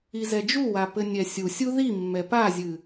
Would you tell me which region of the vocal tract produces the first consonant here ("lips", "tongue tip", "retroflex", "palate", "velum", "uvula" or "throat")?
tongue tip